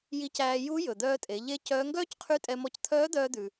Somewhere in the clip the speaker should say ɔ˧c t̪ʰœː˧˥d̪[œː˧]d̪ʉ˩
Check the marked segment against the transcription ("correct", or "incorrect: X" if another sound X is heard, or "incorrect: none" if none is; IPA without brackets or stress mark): correct